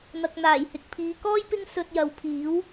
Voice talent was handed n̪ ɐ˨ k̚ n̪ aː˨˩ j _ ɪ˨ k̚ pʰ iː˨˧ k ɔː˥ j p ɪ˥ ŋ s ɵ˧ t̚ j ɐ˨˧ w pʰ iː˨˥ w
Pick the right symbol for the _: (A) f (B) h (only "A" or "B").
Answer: B